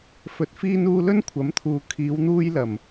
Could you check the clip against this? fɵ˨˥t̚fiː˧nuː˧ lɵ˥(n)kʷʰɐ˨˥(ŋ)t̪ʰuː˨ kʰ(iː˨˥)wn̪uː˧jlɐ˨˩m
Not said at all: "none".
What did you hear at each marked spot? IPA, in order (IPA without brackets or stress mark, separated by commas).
n, m, iː˨˧